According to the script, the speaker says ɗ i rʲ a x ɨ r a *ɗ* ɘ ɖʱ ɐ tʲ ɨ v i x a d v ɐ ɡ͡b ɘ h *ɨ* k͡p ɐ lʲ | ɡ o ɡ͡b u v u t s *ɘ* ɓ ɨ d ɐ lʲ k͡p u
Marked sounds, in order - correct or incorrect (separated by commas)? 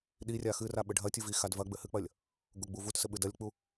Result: incorrect, correct, correct